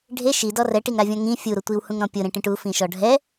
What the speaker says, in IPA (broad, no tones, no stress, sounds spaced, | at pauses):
ɖʱ e ʃ i d ɔ r ɛ ʈ i ŋ ɾ a vʲ ɔ̃ ŋ ĩ fʲ u ɾ ʊ tʷ i w h ũ ŋ ɾ ɔ̃ pʲ ʊ ɾ ẽ ʈ ĩ ʈ u f ĩ ʃ ɔ ɖʱ ɛ